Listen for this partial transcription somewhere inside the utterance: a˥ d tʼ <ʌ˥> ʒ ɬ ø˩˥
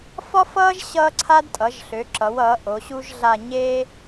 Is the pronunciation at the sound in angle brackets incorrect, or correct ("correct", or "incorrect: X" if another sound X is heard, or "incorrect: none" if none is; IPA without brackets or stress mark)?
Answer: incorrect: ʌ˩˥